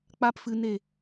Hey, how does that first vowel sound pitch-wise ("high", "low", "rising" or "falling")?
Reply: high